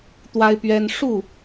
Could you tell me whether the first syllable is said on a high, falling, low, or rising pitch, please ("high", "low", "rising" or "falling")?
high